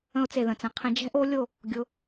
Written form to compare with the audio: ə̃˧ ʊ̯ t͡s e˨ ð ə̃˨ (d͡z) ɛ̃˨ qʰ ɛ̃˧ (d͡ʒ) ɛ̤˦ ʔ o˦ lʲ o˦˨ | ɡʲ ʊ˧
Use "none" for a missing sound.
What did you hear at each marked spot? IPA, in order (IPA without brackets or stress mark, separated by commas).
t͡s, d͡ʒ